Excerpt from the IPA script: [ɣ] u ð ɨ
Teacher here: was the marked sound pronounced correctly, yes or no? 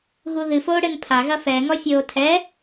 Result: yes